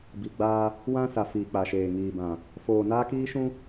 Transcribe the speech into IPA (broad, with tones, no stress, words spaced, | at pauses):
bi˨ɡ͡baː˦ | wã˦sa˨fiː˨ k͡pa˨ʃeː˨ ŋiː˨bã˨ | foː˨ naː˦kiː˦ʃũ˦